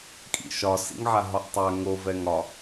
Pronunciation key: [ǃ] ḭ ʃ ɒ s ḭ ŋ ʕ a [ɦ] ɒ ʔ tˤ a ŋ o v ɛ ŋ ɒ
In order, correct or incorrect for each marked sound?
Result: incorrect: kʼ, correct

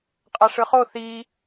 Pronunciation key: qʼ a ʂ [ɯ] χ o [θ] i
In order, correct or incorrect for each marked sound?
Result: correct, correct

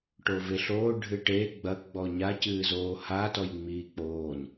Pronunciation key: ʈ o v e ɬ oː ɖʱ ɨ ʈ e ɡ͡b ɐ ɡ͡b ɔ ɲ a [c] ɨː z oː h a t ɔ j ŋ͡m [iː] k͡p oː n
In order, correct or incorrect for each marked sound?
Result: correct, correct

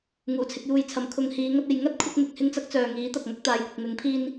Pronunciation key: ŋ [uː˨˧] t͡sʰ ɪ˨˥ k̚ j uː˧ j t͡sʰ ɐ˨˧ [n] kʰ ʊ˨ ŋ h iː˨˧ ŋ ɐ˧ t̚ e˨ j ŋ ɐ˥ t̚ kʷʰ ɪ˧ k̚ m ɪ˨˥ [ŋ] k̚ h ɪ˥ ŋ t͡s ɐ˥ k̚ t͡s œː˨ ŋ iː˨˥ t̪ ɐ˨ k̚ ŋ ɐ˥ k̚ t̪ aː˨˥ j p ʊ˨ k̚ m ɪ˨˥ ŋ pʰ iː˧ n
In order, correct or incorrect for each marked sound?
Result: incorrect: uː˨˩, incorrect: m, incorrect: none

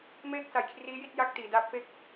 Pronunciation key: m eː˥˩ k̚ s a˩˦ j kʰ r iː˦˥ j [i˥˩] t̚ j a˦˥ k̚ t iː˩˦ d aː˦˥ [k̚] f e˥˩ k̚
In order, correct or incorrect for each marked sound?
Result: correct, incorrect: p̚

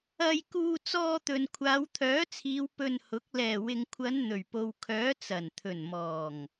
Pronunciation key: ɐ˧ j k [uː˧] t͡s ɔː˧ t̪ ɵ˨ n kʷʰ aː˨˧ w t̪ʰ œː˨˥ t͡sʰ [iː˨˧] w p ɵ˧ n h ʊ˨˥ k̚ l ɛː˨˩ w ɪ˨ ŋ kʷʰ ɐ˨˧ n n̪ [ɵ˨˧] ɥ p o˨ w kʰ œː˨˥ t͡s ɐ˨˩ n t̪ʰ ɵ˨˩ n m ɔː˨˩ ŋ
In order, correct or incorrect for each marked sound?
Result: correct, correct, incorrect: ɵ˨˩

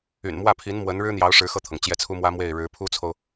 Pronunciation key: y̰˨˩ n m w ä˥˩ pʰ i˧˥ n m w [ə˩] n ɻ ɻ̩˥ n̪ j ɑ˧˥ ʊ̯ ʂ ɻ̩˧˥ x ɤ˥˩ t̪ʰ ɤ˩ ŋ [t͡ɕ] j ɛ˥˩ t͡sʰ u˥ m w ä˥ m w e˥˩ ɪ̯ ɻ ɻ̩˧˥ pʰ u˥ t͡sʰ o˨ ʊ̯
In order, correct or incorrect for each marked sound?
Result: incorrect: ə˧˥, correct

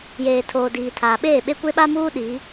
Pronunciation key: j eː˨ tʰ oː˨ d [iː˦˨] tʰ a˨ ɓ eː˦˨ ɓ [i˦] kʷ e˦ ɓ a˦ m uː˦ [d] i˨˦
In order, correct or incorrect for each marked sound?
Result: incorrect: iː˨, incorrect: e˦, incorrect: ɗ

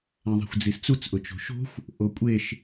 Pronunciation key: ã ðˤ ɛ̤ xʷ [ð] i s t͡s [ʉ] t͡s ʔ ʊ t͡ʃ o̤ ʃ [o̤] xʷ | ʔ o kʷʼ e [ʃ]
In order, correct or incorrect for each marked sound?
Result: incorrect: d͡z, incorrect: u, correct, correct

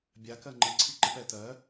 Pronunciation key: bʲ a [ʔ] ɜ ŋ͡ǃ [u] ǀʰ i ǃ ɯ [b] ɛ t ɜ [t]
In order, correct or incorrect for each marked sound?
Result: incorrect: k, incorrect: ɯ, incorrect: p, incorrect: none

